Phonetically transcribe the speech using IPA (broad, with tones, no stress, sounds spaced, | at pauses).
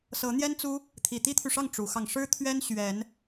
s ɤ˨˦ n̪ j ɛ˦ n t͡s u˦ | t̪ʰ i˨˩ t̪ i˦ t̪ʰ y˨ ʂ ɑ˥˨ ŋ ʈ͡ʂ u˨˦ x ɑ˧ ŋ ʂ ɻ̩˦ t̪ʰ ɥ ɛ˦ n ɕ ɥ ɛ˨˦ n